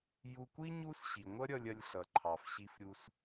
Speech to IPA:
ju˧kʷi˥ ɲu˥sɕi˩ ŋʷʌ˥ɾʲʌ˧lʲɐ˧lʲ ɬʌ˩ǃʰɑ˩fɕi˧fɾʲu˧s

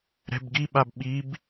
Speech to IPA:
ɾɛ̤bɡiɓab ɓib

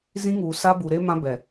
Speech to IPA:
zĩ˦ŋuː˨ sa˦bu˨ɾe˦ mã˦ bɛ˨

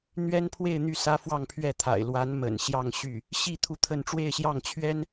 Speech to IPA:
n̪ɥɛ˥npʰwe˥˧ɪ̯n̪y˥˩ sä˥fwɑ˥˧ŋ pʰɥɛ˥˩t̪ʰa̰˨˩ɪ̯ lwa˧˥n mə̰˨˩nɕjɑ˥˧ŋɕy˥˩ | ɕi˥˧ t̪ʰu˥˧t̪ʰə˥˧n ʈ͡ʂwe˥˧ɪ̯ɕjɑ˥˩ŋ t͡ɕʰɥɛ˥n

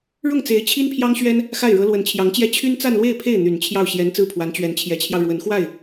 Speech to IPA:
ɻʊ˥˩ŋt͡se˧˥ɪ̯ t͡ɕʰi˥npʰjɑ˥ŋɕɥɛ˥n | xa˥˩ɪ̯ɻɤ˧˥ lwə˧˥nt͡ɕʰjɑ˧˥ŋt͡ɕjɛ˥ t͡ɕʰy˥nt͡sa˥˧nlwe˥˧ɪ̯ pʰe˥˩ɪ̯ n̪y˨˩nt͡ɕʰjɑ˥˩ʊ̯ ɕjɛ˧˥n t͡sɹ̩˥˩pʰwa˧˥n t͡ɕɥɛ˧˥n t͡ɕʰjɛ˧˥t͡ɕʰjɑ˧ʊ̯ ɻwə˧˥nxwa˥˩ɪ̯

